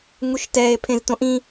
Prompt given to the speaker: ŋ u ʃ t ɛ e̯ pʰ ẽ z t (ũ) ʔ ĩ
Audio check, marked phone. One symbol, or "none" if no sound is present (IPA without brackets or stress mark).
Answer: õ